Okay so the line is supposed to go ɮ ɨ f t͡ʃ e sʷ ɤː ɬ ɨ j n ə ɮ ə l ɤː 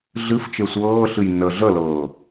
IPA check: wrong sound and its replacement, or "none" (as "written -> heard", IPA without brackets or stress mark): none